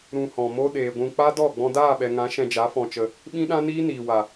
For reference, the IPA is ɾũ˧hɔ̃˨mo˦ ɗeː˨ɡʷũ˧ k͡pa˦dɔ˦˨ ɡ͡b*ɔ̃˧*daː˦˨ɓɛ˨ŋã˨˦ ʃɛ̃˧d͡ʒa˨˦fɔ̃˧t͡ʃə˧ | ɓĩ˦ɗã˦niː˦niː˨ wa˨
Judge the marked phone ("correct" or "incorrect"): correct